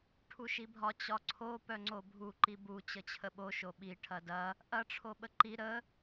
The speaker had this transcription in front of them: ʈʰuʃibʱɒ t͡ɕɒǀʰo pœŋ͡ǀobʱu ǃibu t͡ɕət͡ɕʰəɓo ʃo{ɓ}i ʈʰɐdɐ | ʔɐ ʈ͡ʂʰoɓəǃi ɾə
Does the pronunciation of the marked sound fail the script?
no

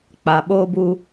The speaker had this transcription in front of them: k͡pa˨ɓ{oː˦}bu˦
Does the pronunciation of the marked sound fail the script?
no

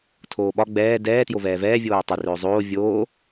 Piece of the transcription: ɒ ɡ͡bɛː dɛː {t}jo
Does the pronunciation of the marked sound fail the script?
no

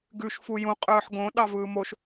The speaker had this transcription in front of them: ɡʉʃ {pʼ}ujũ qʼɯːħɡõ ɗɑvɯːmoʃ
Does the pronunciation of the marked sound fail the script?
yes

